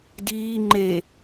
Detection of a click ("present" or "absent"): present